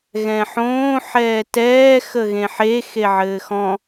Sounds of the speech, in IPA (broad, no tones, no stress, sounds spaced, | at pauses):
ɣ ɛ̃ ħ õː ħ ɛː t ɛː x ə ɣ ẽ ħ e x e ʕ ɘː x ɔ̃